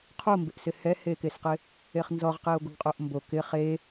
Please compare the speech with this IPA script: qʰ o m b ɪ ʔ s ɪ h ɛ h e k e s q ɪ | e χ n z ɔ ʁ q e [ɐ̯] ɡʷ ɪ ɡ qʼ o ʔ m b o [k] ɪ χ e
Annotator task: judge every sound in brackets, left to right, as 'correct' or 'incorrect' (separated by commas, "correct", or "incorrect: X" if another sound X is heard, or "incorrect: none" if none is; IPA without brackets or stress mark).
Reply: incorrect: o̯, correct